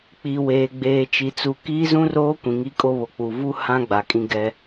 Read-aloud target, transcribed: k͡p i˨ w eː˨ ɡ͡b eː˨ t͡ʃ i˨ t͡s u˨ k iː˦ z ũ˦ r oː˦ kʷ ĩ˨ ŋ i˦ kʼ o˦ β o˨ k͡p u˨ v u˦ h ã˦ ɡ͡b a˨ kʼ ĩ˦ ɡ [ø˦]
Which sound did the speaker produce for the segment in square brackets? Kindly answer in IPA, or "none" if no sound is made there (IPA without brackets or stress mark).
ɛ˦